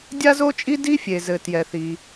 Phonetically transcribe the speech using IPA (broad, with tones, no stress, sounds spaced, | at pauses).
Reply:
dʲ a˥ z o˥ t͡ʃʼ i˥ d i˥ fʲ e˩ z ɘ˩ t j ɛ˩ θ i˩